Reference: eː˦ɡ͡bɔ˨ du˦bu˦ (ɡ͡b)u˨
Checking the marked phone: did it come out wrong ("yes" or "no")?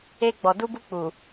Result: yes